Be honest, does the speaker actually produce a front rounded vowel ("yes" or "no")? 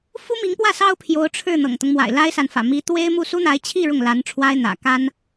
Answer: no